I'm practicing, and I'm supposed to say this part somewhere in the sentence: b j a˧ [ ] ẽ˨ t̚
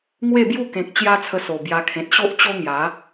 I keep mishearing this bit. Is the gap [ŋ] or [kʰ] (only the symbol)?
kʰ